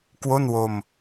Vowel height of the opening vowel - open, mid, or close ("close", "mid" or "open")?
mid